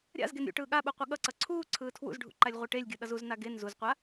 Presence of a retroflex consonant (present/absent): present